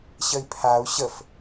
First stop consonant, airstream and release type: aspirated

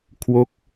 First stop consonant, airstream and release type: aspirated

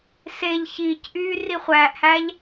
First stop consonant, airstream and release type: plain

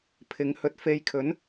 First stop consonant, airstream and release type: aspirated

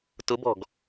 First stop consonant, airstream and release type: plain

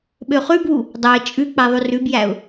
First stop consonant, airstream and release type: implosive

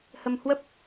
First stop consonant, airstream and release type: plain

